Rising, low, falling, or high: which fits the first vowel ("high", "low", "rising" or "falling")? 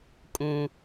low